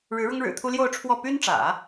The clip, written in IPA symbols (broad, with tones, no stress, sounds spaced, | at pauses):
ɻ ɻ̩˧˥ ɻ ʊ˥ ŋ ɻ ɻ̩˨˩ t̪ʰ u˥ l j o˥˧ ʊ̯ ʈ͡ʂʰ w ɔ˥˩ p y˥ n ʈ͡ʂ ä̰˨˩˦